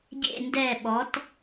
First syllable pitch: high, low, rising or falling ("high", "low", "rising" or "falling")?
falling